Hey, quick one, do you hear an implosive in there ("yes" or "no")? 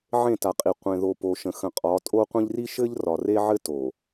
no